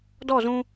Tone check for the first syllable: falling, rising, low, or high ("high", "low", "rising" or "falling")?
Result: falling